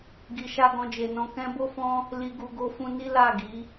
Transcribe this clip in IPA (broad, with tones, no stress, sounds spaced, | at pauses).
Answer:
ɡ i˨ ʃ a˧ ɡ ɔ̃˧ d͡ʒ e˨ n ɔ̃˧ k ɛ̃˧ b o˦ f ɔ̃˦ | l i˨ ɡ u˨ ɡ o˧ f ũ˧ n i˦ l a˦˨ ɡ i˨˦